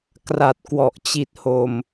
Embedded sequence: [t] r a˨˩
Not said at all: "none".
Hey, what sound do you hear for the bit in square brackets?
k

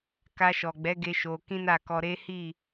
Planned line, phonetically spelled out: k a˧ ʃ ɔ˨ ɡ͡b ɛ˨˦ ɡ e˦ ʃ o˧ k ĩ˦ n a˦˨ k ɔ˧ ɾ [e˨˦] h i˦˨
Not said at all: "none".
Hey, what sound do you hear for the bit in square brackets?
e˦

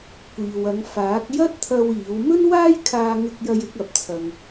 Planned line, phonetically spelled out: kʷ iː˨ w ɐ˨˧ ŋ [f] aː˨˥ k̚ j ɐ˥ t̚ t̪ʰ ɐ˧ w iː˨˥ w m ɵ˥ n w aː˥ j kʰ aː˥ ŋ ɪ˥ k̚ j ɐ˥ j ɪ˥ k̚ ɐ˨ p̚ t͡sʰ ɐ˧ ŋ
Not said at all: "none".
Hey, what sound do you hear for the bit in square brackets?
f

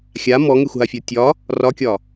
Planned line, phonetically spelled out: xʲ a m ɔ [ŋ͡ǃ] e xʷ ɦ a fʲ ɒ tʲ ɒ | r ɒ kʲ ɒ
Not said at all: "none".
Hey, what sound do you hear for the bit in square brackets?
ŋ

